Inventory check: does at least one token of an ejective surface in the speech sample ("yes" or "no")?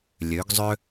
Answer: no